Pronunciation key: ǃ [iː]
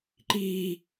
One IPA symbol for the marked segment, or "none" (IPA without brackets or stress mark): iː